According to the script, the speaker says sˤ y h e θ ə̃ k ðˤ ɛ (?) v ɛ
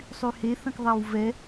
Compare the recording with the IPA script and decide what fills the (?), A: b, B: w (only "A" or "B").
B